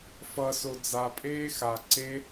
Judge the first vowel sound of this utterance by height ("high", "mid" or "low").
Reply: mid